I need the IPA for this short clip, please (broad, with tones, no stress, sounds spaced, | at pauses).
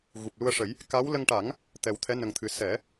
ɣ u˨˩ p̚ l u˧ ə̯ ʂ ə˨˩˦ j | k a˧˥ w l ə˧ ŋ ʈ a˨˩˦ ŋ | t̪ ɛ˨˩ w t̪ʰ ɛ˧˥ n ə˧ ŋ t̪ʰ ɨ˧ s ɛ˨˩˦